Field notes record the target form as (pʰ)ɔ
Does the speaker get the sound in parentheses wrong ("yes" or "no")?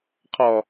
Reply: yes